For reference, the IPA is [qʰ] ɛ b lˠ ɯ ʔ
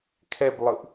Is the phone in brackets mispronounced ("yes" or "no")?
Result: yes